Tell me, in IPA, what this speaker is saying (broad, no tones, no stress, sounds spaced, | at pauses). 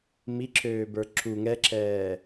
m i ǁʰ øː b ə˞ ǁʰ u ŋ ɛ ǁʰ ɛː